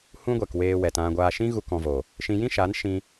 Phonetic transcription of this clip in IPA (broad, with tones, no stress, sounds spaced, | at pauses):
h ũ˦ ɡʷ ɛ˨ k w eː˧ w ɛ˨ t ã˧ ɡʷ aː˧ ʃ ĩ˦ ɣ u˧ k ɔ̃˧ v o˨ | ʃ ĩ˧ j ĩ˦ ʃ aː˨˦ n ʃ ĩ˧